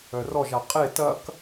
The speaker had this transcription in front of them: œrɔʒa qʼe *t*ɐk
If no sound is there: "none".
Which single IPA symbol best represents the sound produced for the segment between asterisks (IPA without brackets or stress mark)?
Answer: t